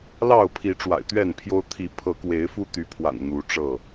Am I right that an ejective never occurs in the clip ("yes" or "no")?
yes